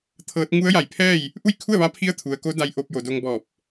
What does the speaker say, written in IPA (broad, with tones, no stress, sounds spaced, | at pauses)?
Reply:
t̪ʰ ɤː˧˥ t̚ ŋ u˧˥ ə̯ j a˧˩ j pʰ ɛː˥˨ j | ʔ u˥˨ j kʰ u˥˨ ə̯ ʋ a˧˥ pʰ i˧˥ ə̯ t̪ʰ u˩ ə̯ k o˧˥ d a˧ j ʔ o˧ p̚ j o˩ d o˧ ŋ b ɔː˧˩ p̚